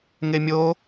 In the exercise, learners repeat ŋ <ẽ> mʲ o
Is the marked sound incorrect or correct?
incorrect